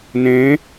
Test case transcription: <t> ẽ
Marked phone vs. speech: incorrect: n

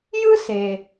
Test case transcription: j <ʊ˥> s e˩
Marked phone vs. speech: incorrect: ɯ˥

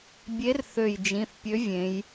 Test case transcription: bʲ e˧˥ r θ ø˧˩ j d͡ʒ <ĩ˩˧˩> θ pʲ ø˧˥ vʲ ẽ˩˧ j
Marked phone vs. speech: correct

